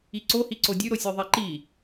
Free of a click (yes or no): no